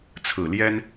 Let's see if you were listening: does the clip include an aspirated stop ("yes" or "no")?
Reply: yes